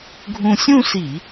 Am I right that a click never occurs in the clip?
yes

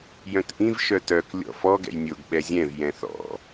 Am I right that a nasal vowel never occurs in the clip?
no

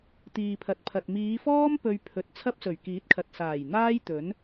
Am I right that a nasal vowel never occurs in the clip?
yes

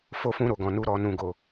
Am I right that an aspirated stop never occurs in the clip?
yes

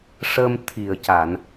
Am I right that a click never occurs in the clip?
yes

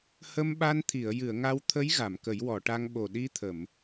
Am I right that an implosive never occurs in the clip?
no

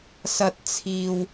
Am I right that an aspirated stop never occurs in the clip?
no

